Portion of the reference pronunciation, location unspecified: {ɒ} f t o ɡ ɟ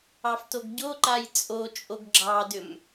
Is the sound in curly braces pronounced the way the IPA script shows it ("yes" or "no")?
no